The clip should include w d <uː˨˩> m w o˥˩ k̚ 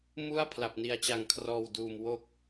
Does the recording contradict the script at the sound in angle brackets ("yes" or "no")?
no